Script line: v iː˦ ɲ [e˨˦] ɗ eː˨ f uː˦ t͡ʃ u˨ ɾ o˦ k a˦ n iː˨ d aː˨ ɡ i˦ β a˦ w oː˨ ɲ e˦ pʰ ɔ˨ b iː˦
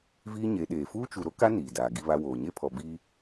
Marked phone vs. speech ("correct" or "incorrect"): correct